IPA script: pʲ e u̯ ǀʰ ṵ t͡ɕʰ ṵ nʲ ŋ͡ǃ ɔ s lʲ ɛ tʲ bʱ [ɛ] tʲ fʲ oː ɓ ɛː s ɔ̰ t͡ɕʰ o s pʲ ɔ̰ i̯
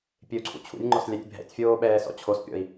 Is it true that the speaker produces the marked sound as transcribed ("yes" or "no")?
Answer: no